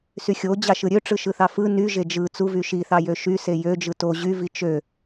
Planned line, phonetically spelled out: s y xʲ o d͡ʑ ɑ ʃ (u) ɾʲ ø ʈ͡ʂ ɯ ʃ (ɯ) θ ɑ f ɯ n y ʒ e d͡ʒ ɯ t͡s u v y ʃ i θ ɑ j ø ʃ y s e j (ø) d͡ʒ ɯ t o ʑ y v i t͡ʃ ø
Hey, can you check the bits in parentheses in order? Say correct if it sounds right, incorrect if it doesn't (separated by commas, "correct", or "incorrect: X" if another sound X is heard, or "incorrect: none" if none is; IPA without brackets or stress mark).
incorrect: ɯ, correct, correct